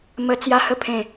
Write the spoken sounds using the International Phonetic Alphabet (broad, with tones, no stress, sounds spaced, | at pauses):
m ə˦ t͡s j a˦ h ə˥˧ pʰ ẽ˥˧